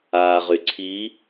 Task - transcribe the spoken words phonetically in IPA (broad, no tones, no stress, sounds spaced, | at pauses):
aː ʁ y ǀʰ i